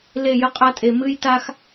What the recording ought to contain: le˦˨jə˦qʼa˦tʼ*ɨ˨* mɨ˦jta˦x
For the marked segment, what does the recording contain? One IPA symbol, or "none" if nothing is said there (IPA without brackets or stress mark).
e˨